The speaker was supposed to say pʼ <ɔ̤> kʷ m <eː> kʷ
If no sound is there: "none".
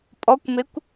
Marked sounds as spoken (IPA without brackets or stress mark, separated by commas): ɔ, e